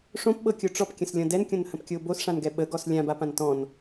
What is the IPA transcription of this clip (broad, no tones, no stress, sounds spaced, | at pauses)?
ʂ õ p ɓ ɤ kʲ o ʈ͡ʂ ɔ p kʲ ə̃ s lʲ ɔ̃ d ɛ n kʲ õ n h ə̃ p kʲ o b o s ʂ ã n ɡ ɛ ɓ ə ɡ ɔ s lʲ ã b a p ã n t ɔ̃ n